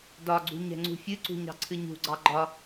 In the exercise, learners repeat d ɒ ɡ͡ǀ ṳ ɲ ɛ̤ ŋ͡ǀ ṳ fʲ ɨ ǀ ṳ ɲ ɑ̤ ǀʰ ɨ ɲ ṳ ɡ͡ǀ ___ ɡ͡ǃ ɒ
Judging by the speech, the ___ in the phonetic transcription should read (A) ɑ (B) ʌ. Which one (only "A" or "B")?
A